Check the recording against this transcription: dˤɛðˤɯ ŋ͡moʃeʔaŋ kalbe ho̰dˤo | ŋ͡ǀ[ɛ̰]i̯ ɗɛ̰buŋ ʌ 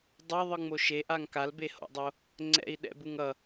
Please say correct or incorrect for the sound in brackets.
correct